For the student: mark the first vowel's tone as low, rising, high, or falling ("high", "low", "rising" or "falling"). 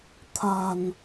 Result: low